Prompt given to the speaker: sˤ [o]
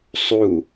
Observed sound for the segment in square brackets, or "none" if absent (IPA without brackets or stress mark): u